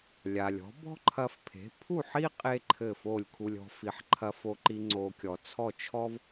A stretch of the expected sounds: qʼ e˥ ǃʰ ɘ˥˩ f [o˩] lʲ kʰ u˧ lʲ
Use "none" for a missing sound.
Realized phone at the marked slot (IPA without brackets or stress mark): o˥˩